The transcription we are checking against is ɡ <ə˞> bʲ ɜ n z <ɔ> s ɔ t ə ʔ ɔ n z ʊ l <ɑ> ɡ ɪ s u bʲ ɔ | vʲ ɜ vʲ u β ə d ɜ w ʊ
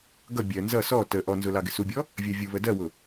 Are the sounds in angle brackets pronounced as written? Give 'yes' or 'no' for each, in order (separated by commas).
no, no, yes